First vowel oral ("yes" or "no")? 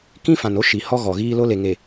no